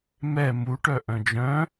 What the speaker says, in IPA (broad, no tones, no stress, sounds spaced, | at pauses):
m ɛ m u ʈ œ ʔ œ̃ d͡ʒ œ̃